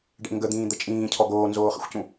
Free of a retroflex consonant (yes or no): no